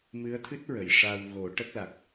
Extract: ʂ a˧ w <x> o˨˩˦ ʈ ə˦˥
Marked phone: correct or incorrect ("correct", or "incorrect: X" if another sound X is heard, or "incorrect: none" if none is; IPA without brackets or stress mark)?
incorrect: ɣ